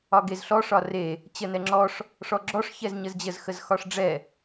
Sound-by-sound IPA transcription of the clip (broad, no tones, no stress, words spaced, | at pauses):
ɒɡezɬɔʂ ɒre | t͡ɕənɛŋ͡ǁɔʂ | ʂɔɡ͡ǁɔʂ çɛzɲəzd͡ʑəz xəzxɒʂɖ͡ʐɛ